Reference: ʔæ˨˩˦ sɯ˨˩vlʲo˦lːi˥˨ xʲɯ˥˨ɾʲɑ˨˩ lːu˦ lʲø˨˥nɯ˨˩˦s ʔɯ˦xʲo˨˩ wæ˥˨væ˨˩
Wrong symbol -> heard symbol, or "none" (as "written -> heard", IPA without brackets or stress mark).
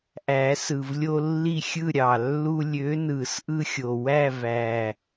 none